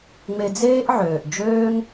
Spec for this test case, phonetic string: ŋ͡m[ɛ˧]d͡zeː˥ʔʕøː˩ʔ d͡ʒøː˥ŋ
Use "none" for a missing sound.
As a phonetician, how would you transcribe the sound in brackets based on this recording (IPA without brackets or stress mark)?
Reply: e˧